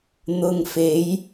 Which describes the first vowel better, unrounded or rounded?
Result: rounded